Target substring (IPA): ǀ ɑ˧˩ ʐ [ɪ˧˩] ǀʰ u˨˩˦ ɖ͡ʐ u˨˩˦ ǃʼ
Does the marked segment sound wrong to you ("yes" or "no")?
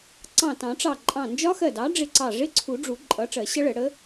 yes